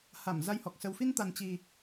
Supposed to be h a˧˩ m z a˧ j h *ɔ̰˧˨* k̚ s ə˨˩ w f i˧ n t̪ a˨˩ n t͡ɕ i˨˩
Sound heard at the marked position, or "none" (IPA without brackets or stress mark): ɔ˨˩